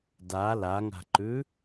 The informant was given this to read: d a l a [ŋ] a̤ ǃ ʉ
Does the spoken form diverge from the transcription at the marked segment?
no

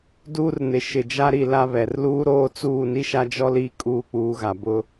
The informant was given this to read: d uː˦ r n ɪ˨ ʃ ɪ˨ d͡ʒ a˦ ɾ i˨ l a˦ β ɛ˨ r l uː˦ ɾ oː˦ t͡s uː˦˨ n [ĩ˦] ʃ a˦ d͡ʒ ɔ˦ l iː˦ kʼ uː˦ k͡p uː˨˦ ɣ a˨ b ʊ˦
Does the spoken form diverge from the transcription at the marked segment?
yes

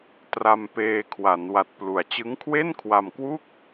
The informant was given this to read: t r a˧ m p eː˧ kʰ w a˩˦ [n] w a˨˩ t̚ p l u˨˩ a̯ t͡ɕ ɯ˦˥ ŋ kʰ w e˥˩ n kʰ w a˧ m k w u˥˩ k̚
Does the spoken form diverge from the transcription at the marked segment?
no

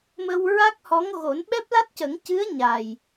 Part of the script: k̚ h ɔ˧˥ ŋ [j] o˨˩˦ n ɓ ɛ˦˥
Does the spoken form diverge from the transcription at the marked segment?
yes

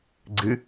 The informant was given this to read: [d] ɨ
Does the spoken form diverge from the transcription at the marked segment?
yes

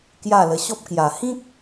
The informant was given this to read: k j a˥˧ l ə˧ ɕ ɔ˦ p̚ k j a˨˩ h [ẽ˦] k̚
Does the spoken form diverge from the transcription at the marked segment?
yes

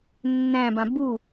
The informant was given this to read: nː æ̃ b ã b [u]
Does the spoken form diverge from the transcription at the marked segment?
no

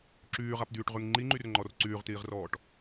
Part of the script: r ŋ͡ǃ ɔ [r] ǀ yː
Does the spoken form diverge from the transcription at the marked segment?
no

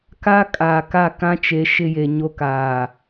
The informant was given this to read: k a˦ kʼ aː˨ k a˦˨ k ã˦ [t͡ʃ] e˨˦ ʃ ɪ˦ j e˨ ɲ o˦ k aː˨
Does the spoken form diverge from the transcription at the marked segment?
no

